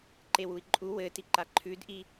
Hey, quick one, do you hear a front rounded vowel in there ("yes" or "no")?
no